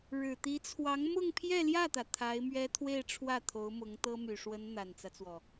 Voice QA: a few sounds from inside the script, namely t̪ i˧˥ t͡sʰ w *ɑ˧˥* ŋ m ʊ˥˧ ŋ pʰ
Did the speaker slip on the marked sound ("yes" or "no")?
no